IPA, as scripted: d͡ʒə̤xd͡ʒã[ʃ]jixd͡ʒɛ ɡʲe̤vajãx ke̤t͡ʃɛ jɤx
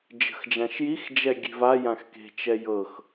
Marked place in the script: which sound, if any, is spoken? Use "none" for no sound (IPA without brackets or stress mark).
ʃ